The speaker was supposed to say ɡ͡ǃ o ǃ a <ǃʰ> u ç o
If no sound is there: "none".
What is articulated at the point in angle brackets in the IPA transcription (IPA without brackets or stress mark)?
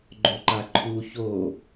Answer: ǃʰ